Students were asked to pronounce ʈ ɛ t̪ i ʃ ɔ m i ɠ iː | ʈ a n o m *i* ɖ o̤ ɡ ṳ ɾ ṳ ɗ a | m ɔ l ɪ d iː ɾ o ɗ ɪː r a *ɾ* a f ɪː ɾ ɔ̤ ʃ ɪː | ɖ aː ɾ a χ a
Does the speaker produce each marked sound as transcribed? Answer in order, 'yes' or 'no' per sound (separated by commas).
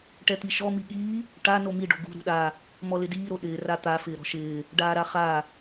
yes, no